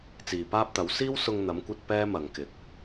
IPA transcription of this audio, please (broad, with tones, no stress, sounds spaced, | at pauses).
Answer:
t͡s iː˨ p aː˥ p̚ t̪ ɐ˨˥ w s iː˥ w s ʊ˧ ŋ n̪ ɐ˨˥ m kʷ ɐ˧ t̚ p ɛː˥ m ɐ˨ ŋ k ɪ˨˥ k̚